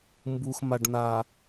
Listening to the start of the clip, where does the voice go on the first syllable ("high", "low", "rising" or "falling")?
low